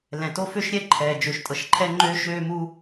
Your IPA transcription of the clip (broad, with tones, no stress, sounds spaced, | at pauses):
l ɛ̃˩ t o˥ f ø˥ ʃ ɾʲ ɛ˥ ǃʰ ɛː˩ d͡ʒ ø˩ ʃ tʼ ɤ˩ ʃ ǃʰ ɛ˥ ŋ͡ǃ øː˥ ʃ øː˥ m u˥